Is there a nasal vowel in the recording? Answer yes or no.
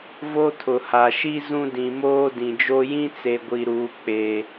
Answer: yes